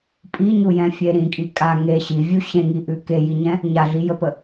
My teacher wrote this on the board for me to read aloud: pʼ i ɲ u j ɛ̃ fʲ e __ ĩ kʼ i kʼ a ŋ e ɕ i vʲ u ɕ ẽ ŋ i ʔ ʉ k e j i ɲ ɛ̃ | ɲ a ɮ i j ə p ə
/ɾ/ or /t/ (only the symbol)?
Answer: ɾ